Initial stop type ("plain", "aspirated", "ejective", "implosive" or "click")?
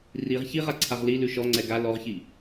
click